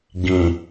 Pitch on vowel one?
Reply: low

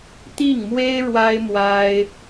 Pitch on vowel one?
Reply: falling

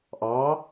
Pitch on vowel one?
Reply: rising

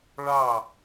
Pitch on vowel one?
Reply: falling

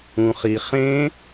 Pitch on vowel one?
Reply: low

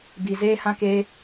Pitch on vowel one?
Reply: low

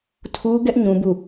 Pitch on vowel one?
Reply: high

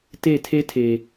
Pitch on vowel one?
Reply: falling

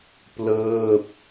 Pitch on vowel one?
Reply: falling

